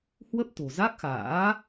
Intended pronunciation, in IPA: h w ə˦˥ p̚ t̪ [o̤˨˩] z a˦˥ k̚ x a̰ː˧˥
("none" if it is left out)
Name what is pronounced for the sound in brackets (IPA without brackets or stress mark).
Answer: o̤˨˩